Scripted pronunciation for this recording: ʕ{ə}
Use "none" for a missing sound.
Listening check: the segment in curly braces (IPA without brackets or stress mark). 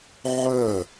œ